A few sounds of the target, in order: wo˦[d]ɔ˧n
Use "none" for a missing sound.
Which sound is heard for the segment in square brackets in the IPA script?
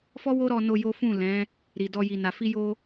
ɾ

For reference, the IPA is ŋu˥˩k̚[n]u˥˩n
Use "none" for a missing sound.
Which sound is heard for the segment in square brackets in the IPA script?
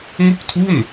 tʰ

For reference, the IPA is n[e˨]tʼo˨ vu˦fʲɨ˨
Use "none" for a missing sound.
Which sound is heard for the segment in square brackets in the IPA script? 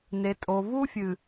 e˨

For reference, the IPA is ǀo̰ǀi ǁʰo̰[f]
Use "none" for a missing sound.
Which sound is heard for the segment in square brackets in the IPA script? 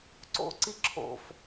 f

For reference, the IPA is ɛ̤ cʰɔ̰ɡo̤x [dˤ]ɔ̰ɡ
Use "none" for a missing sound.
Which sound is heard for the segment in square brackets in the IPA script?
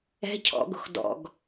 d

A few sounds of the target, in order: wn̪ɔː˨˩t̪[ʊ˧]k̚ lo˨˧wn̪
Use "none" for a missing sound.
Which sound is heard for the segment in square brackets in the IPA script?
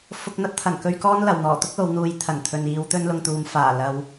ʊ˥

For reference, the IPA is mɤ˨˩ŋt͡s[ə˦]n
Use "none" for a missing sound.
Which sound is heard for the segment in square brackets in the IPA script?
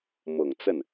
ə˥˩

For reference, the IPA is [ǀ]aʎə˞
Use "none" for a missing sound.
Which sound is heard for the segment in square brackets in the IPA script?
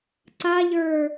ǀ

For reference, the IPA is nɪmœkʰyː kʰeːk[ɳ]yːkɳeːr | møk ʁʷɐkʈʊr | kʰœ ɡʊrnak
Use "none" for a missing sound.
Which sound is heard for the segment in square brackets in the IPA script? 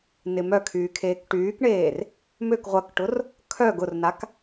ʈ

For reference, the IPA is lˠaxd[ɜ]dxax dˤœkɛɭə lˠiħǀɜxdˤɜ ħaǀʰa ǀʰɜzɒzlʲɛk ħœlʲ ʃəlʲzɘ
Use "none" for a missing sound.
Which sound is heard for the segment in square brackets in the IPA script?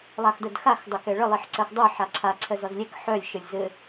ɜ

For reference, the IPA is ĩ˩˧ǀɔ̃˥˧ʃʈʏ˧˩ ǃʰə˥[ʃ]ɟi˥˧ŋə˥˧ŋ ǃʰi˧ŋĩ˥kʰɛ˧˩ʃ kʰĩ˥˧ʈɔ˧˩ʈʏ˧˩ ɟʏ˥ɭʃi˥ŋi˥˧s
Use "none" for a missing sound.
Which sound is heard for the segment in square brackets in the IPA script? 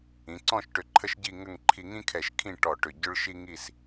ʃ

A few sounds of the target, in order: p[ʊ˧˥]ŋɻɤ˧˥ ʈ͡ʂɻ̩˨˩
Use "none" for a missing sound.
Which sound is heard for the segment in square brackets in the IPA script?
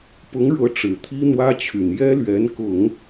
ʊ˧˥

